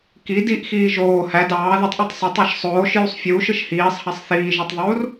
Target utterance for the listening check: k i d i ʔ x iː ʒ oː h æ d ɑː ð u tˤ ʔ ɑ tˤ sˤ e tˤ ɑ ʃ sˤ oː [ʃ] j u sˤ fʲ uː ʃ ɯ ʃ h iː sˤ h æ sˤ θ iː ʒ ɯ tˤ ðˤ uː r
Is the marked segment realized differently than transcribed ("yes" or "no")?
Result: no